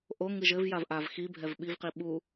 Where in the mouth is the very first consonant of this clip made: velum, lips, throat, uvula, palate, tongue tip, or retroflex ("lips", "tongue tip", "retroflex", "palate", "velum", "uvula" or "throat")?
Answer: throat